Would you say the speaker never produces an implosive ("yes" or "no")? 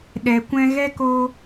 no